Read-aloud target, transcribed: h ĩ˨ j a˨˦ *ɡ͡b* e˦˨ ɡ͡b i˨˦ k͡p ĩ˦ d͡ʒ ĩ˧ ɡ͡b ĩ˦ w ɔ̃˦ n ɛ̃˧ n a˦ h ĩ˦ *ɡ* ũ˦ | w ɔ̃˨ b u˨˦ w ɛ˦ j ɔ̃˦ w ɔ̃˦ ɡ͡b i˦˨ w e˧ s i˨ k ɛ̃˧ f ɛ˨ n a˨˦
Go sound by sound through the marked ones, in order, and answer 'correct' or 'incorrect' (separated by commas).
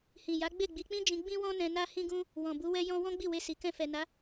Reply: correct, correct